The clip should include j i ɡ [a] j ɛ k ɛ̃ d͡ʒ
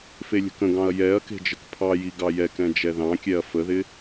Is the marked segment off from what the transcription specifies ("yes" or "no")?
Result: yes